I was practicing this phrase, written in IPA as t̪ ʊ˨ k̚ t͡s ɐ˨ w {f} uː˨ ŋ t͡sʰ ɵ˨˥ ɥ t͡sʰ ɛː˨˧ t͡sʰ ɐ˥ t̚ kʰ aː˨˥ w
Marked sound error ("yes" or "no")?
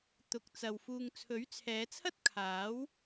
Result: no